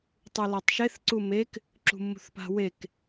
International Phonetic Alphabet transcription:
tˤ u l a tˤ ʃ e θ ǀ u m e k | ǁ ṳ mː ṳ θ p a̤ w e k

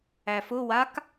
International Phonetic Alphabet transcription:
æ f ʊ w a k

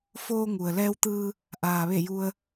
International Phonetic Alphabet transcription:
f oː˧ ŋ u˩ ə̯ l ɛː˧ w t̪ ɯː˧ | ʔ aː˩ ʋ e˧˩ j u˧ ə̯

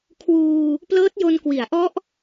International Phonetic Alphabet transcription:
kʰ w uː˧ | p l ɤː˦˥ t̚ j o˧ n k w i˩˦ a̯ ʔ ɔ˦˥ ʔ

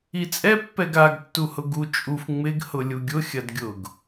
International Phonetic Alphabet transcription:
i t͡sʼ ɛ pː ɛ ɡ a ɡ tː u h ʊ ɡ u t͡ʃʼ u f ŋ͡m ɪ ɡ h ʊ lʲ u ɡʲ ʊ xʲ ɐ d ɡʲ ʊ ɡ

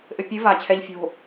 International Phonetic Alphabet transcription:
ʔ ɘ pʲ ɨ v a t͡ɕʰ ɛ ʎ fʲ o̤

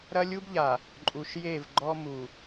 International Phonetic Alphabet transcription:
ɾ ɐ˦ lʲ u˦ b ʎ a˨ | ǃʼ u˨ ʃ j e˦˨ v ɡ͡ǃ ɔ˦ m u˨

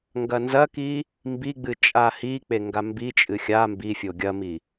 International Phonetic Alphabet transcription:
ŋ ɡ ɐ n z ɐ k i | m b i ɡ͡b ɨ t͡ʃʼ a h i k͡p e ŋ ɡ a m b i t͡ʃʼ ɨ xʲ a m b i fʲ o ɡʲ ɐ m i

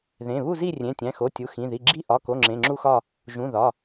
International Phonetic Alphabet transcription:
ð ẽ˩˧˩ β u˥˨ z i˥˨ rʲ ẽ˩˧˩ tʲ æ̃˩˧˩ x o˩˧˩ tʲ u˩˧˩ x ĩ˩˧˩ ð i˩˧˩ ɡ͡ǁ i˥˨ ʔ ɒ˩˧˩ k o˩˧˩ ŋ͡ǁ ẽ˩˧˩ ŋ͡ǁ u˥˨ x ɒ˥˨ | ʒ ũ˩˧˩ ð ɒ˩˧˩

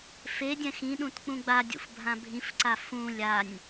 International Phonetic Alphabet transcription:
f e dʲ ɛ̃ x ĩ ɗ ũ t k͡p ũ ɡ͡b a dʲ ṵ f bʱ ã bʱ ĩ f ǀ a f ũ lʲ a nʲ

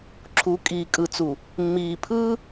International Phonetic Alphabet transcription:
ǁʰ u˨˦ kʼ iː˨ kʼ ɯ˨ t͡s u˨ | mː iː˨ pʰ ɯː˦

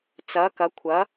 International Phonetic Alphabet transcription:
t͡s ɐ˨˦ k ɐ˨˦ kʷʰ ɐ˨˦

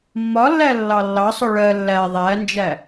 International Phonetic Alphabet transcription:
mː ɒ lː æ lː ɑ lː ɑ sˤ ʊ ɭ ɜ lː æ ðˤ æ n d͡ʒ æ

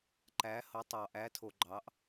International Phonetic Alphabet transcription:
ǃ æ˨˥ h ɤ˨˥ tˤ ɑ˨ ʔ æ˨˥ tʰ o˨ ɡ͡ǃ ɑ˨˥ ʔ

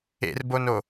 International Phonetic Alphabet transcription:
ḛ r b o n o

